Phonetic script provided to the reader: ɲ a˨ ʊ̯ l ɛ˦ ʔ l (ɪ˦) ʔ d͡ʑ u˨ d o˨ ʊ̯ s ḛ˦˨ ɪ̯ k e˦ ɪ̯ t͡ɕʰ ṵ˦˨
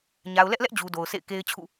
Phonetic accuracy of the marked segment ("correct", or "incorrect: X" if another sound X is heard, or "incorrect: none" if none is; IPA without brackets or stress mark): incorrect: ɛ˦